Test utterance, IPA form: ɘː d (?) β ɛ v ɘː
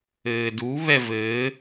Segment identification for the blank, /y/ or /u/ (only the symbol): u